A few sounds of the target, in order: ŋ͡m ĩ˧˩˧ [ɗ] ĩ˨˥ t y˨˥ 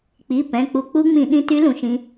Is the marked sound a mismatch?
no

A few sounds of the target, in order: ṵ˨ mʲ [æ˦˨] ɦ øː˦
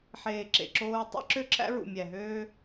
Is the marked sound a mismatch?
yes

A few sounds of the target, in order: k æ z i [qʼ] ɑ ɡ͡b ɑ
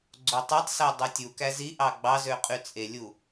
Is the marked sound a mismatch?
yes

